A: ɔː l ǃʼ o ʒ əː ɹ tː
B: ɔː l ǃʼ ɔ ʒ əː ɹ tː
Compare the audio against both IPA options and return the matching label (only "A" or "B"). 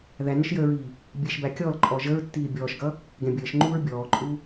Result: B